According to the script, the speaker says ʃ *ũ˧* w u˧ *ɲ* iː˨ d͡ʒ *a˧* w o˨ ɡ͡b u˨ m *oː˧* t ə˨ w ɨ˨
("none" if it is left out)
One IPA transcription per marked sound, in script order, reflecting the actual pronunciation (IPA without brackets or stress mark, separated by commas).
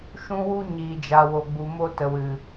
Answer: ũ˧, ɲ, a˨, o˧